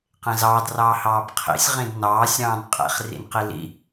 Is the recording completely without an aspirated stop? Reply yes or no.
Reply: no